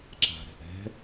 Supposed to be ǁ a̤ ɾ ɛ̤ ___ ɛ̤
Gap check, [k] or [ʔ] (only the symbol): ʔ